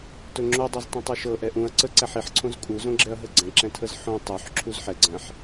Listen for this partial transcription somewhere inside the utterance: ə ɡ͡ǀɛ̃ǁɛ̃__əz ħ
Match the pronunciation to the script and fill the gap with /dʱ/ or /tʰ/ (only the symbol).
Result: tʰ